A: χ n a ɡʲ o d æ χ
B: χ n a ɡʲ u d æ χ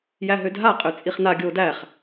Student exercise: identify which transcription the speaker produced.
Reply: A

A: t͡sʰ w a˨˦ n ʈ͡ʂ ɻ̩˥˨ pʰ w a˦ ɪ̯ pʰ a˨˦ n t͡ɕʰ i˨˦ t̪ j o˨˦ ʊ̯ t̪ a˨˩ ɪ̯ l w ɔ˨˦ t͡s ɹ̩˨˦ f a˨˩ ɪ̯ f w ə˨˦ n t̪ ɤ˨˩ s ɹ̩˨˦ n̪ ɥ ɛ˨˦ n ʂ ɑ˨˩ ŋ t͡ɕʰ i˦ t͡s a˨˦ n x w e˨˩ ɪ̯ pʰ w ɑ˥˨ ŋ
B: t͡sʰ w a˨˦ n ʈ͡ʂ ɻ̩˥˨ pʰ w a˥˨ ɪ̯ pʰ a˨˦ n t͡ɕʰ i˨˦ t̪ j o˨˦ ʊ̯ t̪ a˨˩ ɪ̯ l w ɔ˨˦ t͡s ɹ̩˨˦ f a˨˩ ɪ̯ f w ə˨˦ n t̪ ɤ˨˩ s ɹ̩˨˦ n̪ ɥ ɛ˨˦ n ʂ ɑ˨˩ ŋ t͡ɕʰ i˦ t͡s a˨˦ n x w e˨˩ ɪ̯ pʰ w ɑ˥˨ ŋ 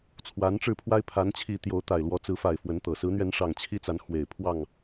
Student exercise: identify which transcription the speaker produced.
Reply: A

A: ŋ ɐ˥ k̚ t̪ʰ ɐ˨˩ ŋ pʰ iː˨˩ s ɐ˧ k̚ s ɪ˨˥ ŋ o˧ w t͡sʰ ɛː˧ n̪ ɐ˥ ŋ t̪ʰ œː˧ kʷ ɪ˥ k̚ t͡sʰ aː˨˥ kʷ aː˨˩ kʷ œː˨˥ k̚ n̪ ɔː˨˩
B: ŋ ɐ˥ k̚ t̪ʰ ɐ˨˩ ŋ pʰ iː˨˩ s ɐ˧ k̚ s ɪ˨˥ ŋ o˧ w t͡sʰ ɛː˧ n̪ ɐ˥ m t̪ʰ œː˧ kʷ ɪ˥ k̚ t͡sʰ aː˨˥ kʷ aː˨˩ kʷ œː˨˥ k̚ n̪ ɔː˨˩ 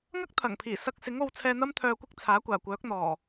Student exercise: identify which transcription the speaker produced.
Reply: B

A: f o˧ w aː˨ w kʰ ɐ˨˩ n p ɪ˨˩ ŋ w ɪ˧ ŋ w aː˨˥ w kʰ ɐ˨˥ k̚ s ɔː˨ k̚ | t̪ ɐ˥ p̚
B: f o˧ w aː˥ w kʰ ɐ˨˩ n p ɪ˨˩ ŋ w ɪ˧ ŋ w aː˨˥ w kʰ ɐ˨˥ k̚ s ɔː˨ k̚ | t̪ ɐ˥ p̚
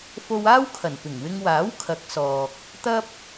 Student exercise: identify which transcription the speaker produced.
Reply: B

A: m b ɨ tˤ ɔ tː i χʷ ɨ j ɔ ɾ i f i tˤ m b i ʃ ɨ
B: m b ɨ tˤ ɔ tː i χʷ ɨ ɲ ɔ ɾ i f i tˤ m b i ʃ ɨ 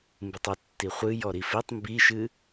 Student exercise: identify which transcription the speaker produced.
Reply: A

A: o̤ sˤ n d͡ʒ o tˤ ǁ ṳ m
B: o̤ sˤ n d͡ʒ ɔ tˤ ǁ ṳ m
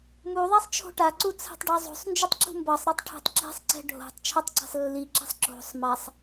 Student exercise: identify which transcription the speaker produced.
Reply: A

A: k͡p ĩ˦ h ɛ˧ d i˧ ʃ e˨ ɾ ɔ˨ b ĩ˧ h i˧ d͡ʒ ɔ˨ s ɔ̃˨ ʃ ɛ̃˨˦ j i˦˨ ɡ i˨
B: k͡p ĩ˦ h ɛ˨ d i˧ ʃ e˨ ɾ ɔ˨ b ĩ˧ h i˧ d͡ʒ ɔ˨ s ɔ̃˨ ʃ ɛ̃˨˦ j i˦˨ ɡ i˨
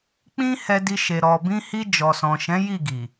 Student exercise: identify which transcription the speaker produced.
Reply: A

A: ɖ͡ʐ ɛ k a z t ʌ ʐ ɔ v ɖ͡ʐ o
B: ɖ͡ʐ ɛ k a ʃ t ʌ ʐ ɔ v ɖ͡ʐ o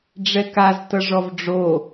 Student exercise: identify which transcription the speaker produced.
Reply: A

